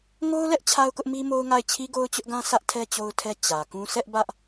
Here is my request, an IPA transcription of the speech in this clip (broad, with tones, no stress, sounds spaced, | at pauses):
ŋ o˦ ʊ̯ l ɛ˦ ʔ t͡ɕʰ a˦ ʊ̯ k ʊ˦ ʔ m i˦ m o˦ ʊ̯ ŋ a˦˨ ɪ̯ t͡ɕʰ i˦ ɡ o˦ ʊ̯ t͡ɕ ʊ˦ ʔ ɡ ã˦ sʰ ä˦ ʔ tʰ ɛ˦ t͡ɕ o˦ ʊ̯ tʰ ɛ˦ t͡ɕ ä˨ k ũ˦ sʰ ɛ˦ ʔ b ä˦ ʔ